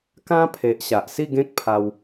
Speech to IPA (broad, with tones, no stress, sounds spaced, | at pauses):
k ã˦ pʰ e˨ ʔ ɕ a˨ ʔ s i˥˧ ɡ ẽ˦ k̚ pʰ a˧ w